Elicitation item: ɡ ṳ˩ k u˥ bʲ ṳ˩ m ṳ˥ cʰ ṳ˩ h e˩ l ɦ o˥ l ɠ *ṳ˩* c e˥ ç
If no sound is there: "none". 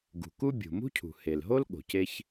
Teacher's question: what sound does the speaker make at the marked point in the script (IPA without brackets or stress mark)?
o̤˩